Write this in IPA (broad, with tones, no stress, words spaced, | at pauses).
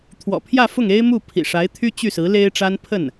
t̪ʰwɔ̰˨˩pʰjä˥˧fʊ˥˩ŋ e˥ɪ̯mu˥˩ pʰḭ˨˩ʂa˧˥ɪ̯t̪ʰy˥ t͡ɕy˥˩sɹ̩˧˥ le˥ɪ̯ ʈ͡ʂa˥npʰə˥˩n